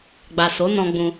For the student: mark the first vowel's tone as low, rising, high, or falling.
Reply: low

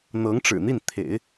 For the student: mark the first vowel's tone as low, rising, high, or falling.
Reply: rising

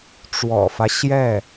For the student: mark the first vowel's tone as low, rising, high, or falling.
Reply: low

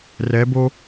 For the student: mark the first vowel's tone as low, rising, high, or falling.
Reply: rising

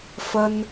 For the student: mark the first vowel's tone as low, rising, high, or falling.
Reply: high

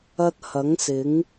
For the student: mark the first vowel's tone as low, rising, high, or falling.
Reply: high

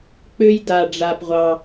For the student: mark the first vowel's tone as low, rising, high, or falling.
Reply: high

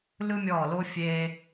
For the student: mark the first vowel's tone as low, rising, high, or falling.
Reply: high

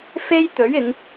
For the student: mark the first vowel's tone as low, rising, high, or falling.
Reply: high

